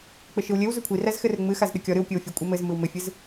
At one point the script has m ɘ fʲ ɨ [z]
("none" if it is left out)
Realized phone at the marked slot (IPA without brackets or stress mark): z